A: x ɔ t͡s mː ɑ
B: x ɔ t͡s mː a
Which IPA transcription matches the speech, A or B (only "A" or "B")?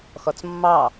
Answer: A